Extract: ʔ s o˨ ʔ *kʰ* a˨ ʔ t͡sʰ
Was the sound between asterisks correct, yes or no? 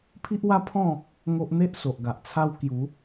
no